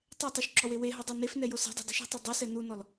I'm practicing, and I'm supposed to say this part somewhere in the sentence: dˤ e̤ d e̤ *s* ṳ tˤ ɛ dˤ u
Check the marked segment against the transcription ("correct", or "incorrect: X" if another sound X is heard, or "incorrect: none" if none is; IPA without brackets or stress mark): incorrect: ʃ